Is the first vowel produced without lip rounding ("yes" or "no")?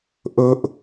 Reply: no